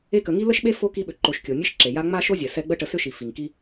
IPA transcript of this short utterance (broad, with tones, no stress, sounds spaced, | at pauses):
e˦ k ə˨ ŋ i˥ l ə˥ ʃ ɓ e˥ f o˥ k i˦ ɓ ʏ˨ ǃ o˨ ʃ kʲ o˩ nʲ ɛ˥ ʃ ǁ e˩ j a˥ ŋ͡m a˥ ʃ o˥ zʲ ɛ˩ s ɛ˦ ɡ͡b ə˦ ʈ ə˨ s ʏ˥ ʃ i˩ f i˩ ŋ k i˦